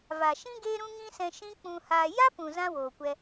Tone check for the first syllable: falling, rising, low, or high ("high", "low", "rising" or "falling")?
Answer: low